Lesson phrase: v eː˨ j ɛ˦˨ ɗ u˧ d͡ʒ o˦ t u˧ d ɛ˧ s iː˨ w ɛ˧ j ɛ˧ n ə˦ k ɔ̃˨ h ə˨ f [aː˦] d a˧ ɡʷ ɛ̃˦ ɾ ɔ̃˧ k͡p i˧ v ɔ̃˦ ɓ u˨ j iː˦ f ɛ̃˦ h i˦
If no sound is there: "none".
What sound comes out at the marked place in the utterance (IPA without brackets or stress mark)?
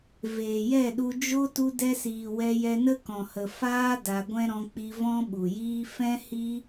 aː˦